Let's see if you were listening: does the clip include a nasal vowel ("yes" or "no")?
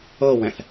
yes